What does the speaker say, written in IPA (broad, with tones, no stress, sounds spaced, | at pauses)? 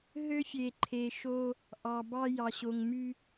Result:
ɦ ø˦ fʲ e˨ ǃʰ e˨ ʃ o˦ | ʔ ɑ˨ b ɑ˦ j ɑ˨ ɕ o˨ ŋ m y˦